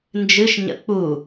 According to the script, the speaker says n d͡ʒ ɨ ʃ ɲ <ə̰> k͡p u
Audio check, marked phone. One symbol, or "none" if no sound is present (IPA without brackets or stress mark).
ə̰